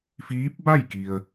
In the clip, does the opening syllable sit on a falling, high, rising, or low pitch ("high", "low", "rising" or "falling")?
rising